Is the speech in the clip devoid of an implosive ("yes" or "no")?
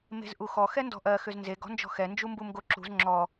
yes